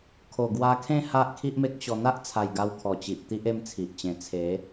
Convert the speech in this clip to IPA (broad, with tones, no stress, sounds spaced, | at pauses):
kʰ o˨˩ ɡ w a˧ kʰ ẽ˥˧ h a˦ ʔ kʰ i˦ ʔ m e˦ k̚ ɕ ɔ˧ n̪ a˦ ʔ t͡sʰ a˨˩ j ɡ a˧ w kʰ ɔ˨˩ t͡ɕ i˨ ʔ t̪ i˦ ʔ e˥˧ m t͡sʰ i˨ ʔ t͡ɕ ẽ˨˩ t͡sʰ e˨˦